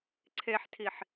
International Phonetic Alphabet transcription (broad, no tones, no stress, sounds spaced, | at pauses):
ǀʰ e ħ tʰ i ħ